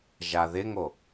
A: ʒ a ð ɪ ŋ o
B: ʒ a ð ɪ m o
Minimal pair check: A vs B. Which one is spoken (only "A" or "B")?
A